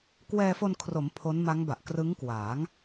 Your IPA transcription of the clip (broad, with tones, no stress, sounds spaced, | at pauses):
k w ɛː˧ f o˧ n kʰ r o˩˦ m pʰ o˦˥ n m a˦˥ ŋ b a˨˩ ʔ k r ɯ˦˥ ŋ k w aː˩˦ ŋ